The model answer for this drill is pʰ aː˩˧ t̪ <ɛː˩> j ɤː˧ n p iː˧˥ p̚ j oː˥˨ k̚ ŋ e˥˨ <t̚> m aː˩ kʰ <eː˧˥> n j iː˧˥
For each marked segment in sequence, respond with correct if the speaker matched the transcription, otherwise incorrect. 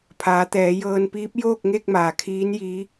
incorrect: ɛː˩˧, incorrect: k̚, incorrect: iː˧˥

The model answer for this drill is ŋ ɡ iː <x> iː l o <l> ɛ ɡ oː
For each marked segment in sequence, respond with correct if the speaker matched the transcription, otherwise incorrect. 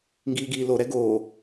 incorrect: ɡ, incorrect: ɾ

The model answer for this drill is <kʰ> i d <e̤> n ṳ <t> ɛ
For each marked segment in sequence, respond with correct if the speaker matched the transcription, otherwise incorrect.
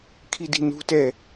correct, incorrect: i̤, correct

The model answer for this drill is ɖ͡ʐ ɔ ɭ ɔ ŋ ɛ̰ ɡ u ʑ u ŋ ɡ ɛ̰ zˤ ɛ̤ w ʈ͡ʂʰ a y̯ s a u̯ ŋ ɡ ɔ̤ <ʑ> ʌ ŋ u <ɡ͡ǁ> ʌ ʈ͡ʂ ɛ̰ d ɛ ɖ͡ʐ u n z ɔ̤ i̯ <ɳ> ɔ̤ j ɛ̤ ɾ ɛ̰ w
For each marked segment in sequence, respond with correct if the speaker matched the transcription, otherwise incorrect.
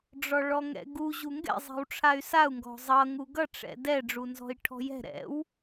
incorrect: zˤ, incorrect: ɡ, incorrect: ʈʰ

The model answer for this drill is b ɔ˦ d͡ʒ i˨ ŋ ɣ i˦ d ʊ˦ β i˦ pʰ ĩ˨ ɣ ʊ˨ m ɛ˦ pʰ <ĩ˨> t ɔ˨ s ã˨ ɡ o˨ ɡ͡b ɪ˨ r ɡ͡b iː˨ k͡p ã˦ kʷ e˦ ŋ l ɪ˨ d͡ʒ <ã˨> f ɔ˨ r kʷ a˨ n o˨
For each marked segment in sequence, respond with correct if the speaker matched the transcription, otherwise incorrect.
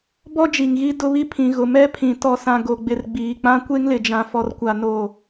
correct, correct

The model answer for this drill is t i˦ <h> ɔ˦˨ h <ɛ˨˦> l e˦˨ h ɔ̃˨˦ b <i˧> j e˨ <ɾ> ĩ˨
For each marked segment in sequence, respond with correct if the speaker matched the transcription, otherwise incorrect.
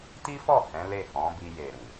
incorrect: f, incorrect: ɛ̃˨˦, correct, correct

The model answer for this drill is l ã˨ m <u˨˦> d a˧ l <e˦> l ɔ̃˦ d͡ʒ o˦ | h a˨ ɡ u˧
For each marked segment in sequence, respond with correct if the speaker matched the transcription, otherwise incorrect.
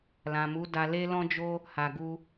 correct, correct

